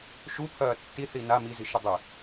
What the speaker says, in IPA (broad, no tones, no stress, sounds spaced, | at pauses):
ʃ u pʰ ɐː tː i θ i n a m i z i ʃ ɨ dˤ e